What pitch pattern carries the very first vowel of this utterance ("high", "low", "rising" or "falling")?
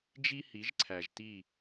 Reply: high